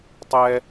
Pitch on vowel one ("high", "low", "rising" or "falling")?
high